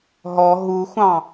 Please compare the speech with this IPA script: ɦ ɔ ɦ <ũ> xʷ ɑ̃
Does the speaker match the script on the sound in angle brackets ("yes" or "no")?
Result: no